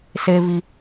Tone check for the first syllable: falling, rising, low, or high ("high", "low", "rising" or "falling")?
low